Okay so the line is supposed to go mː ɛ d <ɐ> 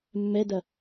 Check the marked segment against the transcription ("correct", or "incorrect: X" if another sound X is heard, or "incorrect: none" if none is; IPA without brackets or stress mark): correct